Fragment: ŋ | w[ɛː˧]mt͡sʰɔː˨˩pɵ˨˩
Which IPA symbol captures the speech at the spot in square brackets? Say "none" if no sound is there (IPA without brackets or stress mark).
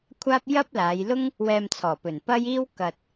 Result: ɛː˧